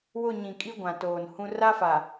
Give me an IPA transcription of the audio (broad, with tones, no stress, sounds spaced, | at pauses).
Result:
w ʊ˦˨ ɲ ĩ˨ kʼ i˦ ɡʷ ã˨ t oː˨ n h ũ˦ r a˦ f a˨